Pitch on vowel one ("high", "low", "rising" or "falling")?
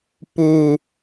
high